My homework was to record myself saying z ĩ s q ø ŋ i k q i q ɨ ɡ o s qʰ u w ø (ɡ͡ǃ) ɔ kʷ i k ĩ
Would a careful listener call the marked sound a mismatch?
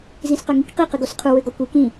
yes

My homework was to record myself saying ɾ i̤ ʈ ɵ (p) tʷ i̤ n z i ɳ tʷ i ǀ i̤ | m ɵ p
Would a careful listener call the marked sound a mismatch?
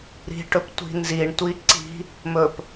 no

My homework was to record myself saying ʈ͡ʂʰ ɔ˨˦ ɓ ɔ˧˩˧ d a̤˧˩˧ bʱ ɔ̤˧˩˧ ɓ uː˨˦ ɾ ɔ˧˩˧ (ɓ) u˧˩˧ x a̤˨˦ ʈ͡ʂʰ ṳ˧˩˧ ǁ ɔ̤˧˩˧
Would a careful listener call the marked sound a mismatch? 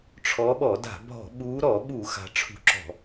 no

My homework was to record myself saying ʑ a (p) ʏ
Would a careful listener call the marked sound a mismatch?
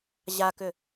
yes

